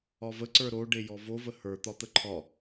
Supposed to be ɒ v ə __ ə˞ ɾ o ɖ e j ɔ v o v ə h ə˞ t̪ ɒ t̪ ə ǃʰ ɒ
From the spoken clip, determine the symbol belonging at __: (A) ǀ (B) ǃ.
A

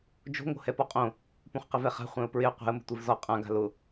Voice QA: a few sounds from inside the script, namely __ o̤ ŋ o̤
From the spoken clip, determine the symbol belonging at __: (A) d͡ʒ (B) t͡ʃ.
A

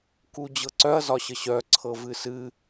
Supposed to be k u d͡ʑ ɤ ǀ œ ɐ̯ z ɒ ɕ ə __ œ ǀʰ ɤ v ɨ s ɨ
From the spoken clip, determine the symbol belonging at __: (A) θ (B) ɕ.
B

